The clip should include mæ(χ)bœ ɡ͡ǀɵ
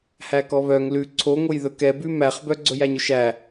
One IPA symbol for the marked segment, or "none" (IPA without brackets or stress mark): χ